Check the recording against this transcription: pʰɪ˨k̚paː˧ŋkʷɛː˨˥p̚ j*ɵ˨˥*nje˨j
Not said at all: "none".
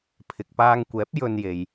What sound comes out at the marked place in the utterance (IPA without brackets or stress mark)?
ɵ˧